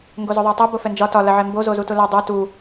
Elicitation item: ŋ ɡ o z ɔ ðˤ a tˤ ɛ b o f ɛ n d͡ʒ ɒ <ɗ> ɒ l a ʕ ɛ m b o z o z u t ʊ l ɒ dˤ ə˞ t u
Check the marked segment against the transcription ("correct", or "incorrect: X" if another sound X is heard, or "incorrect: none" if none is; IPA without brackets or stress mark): incorrect: t